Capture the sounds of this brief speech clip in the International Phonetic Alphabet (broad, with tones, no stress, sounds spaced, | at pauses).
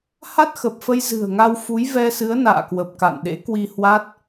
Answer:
h a˦˥ t̚ x ə˨˩ p̚ f ə˧ j z ɨ̤˨˩ ə̯ ŋ a˧ w f u˨˦ j v ɛ˧ s ɨ˨˦ ə̯ n a̰ː˧˨ k w ə˨˩ p̚ k a̰˧˨ n ɗ ḛ˧˥ k w i˧ h w a˦˥ t̚